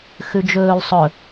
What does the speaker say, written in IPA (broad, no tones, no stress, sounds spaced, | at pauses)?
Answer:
x ʉ d͡ʒ ɵː l sˤ ɵ